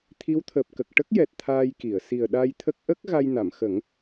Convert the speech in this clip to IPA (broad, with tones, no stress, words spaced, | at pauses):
t̪ʰi˧˥wt̪ʰəː˨˩p̚kə˨˩k̚ ʈə˦˥k̚jɛ˨˩t̚ t̪ʰaː˧jki˨˩˨ə̯ si˨˩ə̯ɗa˧jt̪ʰə˦˥k̚ ʔə˦˥k̚ ɣa˧jna˨˩˨mxə˨˩˦ŋ